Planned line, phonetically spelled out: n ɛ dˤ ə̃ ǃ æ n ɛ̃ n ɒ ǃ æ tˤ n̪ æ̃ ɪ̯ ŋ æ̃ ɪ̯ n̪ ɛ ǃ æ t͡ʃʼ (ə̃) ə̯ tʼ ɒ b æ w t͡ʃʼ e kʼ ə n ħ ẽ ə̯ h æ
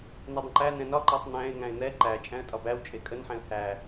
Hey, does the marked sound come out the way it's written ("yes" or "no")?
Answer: no